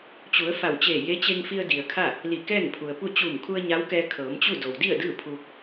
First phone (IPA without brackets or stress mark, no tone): t͡ɕ